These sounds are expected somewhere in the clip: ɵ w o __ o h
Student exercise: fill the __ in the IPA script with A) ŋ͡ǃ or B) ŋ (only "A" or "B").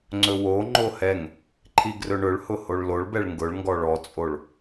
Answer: A